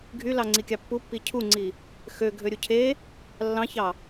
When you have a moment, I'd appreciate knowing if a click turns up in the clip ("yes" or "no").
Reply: yes